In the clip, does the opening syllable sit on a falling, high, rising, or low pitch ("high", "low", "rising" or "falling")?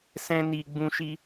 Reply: high